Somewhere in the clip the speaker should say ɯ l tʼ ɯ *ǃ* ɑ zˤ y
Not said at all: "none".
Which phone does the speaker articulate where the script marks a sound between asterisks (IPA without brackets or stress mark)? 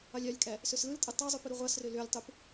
tˤ